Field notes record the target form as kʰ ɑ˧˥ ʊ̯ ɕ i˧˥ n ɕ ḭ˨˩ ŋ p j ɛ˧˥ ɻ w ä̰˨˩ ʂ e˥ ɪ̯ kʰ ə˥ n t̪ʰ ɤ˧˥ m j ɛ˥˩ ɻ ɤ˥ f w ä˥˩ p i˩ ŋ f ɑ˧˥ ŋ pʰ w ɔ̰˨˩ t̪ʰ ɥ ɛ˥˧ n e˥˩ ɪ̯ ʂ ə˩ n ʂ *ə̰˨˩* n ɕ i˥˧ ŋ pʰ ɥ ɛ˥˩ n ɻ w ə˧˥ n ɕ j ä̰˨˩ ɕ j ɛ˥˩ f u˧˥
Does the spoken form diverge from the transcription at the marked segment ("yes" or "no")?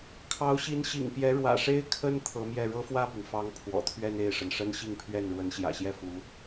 yes